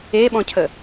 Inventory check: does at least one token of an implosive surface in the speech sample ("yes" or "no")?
yes